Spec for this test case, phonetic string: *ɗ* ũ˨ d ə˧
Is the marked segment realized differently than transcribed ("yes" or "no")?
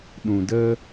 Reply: no